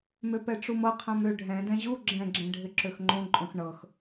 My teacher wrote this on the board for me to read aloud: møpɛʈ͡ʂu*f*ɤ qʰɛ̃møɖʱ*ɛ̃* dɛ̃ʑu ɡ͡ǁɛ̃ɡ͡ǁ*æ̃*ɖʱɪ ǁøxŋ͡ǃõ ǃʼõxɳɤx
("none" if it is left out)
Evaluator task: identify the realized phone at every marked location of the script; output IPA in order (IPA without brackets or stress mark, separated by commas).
m, ɛ̃, ɛ̃